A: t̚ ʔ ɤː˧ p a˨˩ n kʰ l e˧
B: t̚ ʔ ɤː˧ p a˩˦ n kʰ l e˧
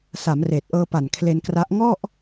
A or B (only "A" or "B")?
A